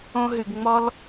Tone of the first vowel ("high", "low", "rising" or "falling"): high